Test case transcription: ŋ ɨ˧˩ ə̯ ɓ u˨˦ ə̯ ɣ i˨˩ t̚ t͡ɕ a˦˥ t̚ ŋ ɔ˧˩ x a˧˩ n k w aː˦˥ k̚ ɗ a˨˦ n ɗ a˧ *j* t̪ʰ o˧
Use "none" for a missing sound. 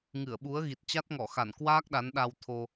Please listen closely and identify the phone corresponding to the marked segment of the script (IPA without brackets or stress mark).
w